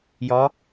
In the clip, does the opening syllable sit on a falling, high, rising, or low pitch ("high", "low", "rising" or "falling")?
rising